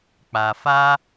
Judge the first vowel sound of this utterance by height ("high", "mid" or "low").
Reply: low